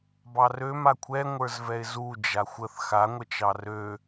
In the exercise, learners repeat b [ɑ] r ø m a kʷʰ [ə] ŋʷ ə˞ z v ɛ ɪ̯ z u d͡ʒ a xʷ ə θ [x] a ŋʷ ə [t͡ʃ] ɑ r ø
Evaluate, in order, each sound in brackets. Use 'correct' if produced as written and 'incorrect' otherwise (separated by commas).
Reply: correct, incorrect, correct, correct